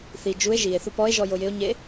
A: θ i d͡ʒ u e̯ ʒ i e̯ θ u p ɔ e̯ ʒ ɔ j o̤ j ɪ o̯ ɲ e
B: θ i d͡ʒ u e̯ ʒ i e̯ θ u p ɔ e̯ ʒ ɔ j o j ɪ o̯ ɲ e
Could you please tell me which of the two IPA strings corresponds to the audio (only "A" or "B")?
B